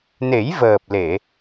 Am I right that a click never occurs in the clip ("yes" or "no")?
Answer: yes